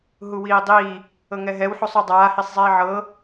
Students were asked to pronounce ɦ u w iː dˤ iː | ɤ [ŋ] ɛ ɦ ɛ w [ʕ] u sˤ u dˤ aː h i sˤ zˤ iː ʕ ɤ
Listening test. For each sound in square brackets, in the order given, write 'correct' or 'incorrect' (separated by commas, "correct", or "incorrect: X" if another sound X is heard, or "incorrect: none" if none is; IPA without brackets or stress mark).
correct, incorrect: ħ